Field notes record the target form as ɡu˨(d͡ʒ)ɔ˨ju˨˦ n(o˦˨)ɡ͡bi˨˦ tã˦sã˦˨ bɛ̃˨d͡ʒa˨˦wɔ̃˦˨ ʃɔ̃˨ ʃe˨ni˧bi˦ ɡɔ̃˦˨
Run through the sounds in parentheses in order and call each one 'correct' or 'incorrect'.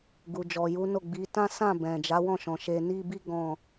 correct, correct

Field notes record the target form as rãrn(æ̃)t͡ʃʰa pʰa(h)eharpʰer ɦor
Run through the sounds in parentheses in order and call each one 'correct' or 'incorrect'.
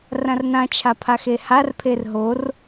incorrect, incorrect

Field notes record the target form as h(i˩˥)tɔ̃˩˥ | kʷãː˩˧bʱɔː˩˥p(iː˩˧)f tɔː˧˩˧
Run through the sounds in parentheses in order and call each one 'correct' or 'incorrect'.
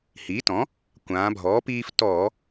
incorrect, incorrect

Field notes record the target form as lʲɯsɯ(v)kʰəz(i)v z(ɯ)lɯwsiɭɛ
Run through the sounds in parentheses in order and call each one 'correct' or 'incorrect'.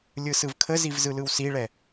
correct, correct, correct

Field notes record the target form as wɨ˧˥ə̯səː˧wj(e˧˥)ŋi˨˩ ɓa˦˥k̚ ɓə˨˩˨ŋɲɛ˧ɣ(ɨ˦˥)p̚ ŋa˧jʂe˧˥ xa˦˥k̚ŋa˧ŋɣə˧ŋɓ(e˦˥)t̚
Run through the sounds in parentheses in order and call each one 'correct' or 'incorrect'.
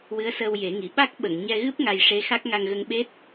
incorrect, correct, correct

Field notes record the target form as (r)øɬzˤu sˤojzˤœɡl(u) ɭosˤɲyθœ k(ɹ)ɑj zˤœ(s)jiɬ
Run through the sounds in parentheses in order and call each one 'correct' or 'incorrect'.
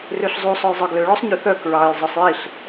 correct, incorrect, correct, incorrect

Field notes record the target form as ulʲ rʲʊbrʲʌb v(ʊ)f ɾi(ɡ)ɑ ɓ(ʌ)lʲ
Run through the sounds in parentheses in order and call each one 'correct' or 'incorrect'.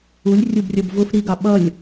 correct, correct, correct

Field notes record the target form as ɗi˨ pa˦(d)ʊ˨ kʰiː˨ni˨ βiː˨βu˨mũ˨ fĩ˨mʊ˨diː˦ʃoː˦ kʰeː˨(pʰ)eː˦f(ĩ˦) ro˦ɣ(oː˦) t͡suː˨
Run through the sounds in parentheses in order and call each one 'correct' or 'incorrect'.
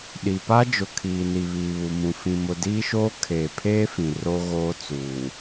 incorrect, correct, incorrect, correct

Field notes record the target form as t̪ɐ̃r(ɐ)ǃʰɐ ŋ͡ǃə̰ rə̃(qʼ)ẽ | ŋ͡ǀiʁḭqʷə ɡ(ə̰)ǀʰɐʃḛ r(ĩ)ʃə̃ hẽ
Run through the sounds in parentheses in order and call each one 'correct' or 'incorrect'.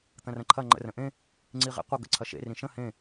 incorrect, incorrect, correct, correct

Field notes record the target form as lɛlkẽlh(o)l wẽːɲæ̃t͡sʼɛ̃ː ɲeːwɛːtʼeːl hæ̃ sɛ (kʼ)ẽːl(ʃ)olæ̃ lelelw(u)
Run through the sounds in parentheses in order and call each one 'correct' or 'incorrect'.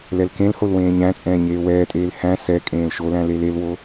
correct, correct, correct, incorrect

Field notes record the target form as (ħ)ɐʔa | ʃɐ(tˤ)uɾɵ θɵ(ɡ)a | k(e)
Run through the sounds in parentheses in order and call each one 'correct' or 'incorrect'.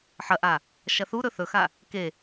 correct, incorrect, incorrect, correct

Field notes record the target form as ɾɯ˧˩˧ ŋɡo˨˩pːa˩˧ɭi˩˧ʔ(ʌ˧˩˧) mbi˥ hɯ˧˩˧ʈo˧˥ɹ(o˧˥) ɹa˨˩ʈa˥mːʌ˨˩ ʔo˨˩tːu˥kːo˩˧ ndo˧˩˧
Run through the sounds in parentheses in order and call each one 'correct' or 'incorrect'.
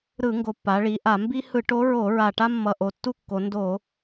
incorrect, incorrect

